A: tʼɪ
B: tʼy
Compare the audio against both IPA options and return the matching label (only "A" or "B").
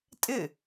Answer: A